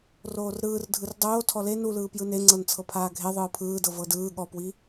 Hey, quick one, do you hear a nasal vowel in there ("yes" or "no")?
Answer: no